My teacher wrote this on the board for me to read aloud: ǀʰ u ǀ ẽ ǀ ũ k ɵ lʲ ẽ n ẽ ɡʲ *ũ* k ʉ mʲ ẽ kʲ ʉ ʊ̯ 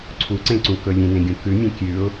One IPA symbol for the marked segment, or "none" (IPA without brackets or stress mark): ũ